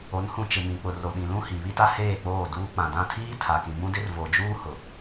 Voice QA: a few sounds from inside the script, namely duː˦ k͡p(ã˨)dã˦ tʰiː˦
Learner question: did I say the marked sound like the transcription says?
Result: yes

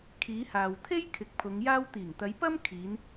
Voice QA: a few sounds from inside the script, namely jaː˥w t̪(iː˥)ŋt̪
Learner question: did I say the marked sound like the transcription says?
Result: no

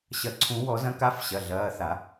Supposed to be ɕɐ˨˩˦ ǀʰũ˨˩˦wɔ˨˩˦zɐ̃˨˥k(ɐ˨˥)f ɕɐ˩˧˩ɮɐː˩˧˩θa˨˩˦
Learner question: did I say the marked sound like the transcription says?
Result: no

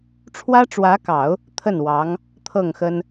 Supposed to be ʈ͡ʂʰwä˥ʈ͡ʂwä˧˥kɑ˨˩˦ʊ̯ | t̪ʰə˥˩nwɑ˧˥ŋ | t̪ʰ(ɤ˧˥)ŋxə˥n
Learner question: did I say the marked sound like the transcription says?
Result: no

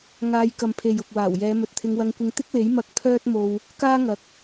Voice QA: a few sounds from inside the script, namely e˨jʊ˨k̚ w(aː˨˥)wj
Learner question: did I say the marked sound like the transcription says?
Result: no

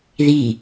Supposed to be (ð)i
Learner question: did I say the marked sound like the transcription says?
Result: yes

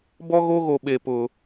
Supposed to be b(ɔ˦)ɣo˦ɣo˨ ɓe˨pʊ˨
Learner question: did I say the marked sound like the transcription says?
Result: yes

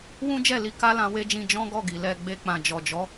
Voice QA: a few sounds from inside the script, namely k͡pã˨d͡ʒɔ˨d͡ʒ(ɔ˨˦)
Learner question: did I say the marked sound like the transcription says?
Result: yes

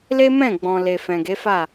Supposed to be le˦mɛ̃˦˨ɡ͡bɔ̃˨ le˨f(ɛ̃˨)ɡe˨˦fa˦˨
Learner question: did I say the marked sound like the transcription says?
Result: yes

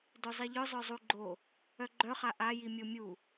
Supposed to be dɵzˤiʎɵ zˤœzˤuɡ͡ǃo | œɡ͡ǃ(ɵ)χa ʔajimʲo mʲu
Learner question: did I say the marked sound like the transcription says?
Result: no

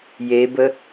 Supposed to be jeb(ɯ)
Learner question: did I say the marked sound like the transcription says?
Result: no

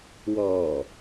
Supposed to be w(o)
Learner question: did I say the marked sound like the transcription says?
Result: no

